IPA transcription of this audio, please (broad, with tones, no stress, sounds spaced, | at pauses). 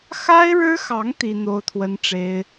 x a˥ ɪ̯ ɻ ɻ̩˥ x ɑ˧˥ ŋ t̪ i˥ n̪ o˥ ʊ̯ t̪ʰ w ə˥ n ʈ͡ʂ e˥ ɪ̯